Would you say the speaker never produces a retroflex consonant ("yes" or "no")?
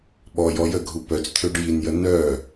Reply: no